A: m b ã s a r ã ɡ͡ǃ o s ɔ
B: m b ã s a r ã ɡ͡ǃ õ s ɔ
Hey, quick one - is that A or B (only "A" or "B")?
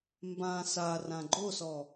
A